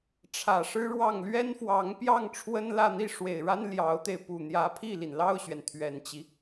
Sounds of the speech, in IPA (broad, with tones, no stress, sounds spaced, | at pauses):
ʈ͡ʂʰ ä˨˩ ʂ ɻ̩˥ ɻ w ɑ˥˩ ŋ l ɥ ɛ˥ n f w ɑ˧˥ ŋ p j ɑ˥˩ ŋ ʈ͡ʂʰ w ə˥ n l ä˥˧ n̪ i˥˩ ʂ w e˨˩ ɪ̯ ɻ a˥ n l j ɑ˧˥ ʊ̯ t̪ e˧ ɪ̯ p u˨˩ n̪ j ä˧˥ pʰ i˥˩ l i˩ n l ɑ˥˩ ʊ̯ ɕ ɥ ɛ˩ n t̪ʰ ɥ ɛ˨˩ n t͡ɕ i˦